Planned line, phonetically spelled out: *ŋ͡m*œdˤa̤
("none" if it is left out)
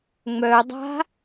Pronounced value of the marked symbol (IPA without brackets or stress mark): ŋ͡m